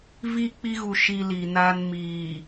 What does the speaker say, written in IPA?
vi˦˨ k͡pi˦ɣu˨ ʃi˨ li˨naː˦n miː˨

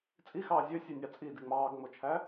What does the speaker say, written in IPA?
t͡sʼixɑː zʲøsʲønʲɑ t͡sʼidi ŋ͡mɑːɡŋ͡mot͡ʃʰæ

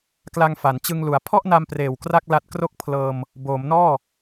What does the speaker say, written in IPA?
kla˧ŋfa˩˦nt͡ɕɯ˧ŋlu˩˦a̯ pʰɔ˥˩ʔna˧mpreː˨˩w kra˥˩k̚la˦˥t̚kro˥˩k̚ pʰlɤː˧m | boː˩˦mnɔː˥˩

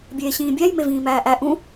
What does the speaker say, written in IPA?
bʲeːɕĩːbʲæj mevĩːmæːʔæ ʔũ

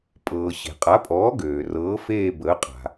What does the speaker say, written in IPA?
pʼɤː˩ɕe̤˩qʼa˩˥pʼɔː˩˥ ɡøː˩ rɤː˩˥feː˦˨ bəː˩˥qʼa̤˩

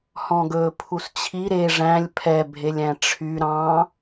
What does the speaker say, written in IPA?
hɔ̃ɡɵ pʰust͡ɕʰi ɾe ʐæ̃lʲ pʰɛbʱelʲæ̃ ʈ͡ʂʰy ɾɑ̃

